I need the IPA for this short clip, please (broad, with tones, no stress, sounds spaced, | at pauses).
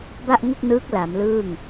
b a˥˩ ʔ ŋ u˥˩ k̚ n ɯː˦˥ k̚ l a˩˦ m l ɯː˥˩ ŋ